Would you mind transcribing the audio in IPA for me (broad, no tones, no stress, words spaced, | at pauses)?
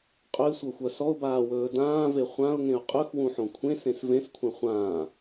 qʼɵɪ̯sʷɤxʷœ sɔʊ̯baːwɵː dãːve χʷãʊ̯ŋẽʊ̯ qʼɵxwũħõ kʷʰẽsẽs vẽskʷʰẽ χʷãː